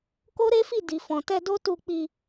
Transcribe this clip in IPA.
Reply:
k o˦ ɾ e˦ f i˦˨ d i˨ f ɔ̃˨ t ɛ˧ d o˦ t u˧ k͡p i˧

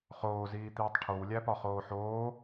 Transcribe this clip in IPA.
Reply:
χ oː z iː t̪ iː tˤ ʈʰ o w lʲ æ p ɒ χ oː ħ oː

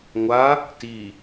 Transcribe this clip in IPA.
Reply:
ŋʷ a | t i

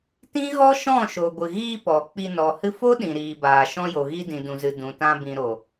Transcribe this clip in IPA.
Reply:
t ĩ˦ ɣ ɔ˦ ʃ ɔ̃˦˨ ʃ o˨ ɡʷ ɨ˨ ɣ iː˧ p ɔ˨ k͡p i˧ n ɔ˨ h ɨ˧ f o˦ ɗ ĩ˨ ɾ iː˨ b aː˨ ʃ ɔ̃˧ j o˨ ɣ i˧ d ĩ˨ d ũ˨ z ɨ˨ d ũ˨ t ã˧ b ĩ˨ ɾ o˨

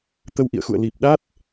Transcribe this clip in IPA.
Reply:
t̪ ə˧ w ʔ ḭ˧˨ ə̯ x ṵ˧˨ ə̯ l i˨˩ p̚ ɗ a˦˥ t̚

